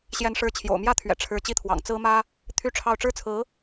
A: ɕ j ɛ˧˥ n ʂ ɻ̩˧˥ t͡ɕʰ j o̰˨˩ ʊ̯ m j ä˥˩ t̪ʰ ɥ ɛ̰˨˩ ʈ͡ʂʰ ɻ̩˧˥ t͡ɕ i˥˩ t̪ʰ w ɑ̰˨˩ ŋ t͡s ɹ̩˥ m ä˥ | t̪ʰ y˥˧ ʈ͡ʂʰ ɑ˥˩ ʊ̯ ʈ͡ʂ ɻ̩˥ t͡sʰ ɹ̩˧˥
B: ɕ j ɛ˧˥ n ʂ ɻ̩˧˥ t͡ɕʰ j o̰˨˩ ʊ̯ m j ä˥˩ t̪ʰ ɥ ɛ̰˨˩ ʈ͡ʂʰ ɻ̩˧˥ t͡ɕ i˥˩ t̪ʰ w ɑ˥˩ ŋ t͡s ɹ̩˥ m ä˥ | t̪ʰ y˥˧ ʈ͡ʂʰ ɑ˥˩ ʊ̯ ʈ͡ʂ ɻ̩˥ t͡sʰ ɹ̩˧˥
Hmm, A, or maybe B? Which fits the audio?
A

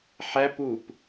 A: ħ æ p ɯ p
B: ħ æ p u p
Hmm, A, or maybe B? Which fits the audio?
B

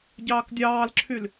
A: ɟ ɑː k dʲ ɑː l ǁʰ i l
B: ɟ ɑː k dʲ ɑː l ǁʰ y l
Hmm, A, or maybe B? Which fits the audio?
B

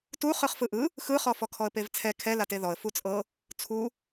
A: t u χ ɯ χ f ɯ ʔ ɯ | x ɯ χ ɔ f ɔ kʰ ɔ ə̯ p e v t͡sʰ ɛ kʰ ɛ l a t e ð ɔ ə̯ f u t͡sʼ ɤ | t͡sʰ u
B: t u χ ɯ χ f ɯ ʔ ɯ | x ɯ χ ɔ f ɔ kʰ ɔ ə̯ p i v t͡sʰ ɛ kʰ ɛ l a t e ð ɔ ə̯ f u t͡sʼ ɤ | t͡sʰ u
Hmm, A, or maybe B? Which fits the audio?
A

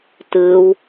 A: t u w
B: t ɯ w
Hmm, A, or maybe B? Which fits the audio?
B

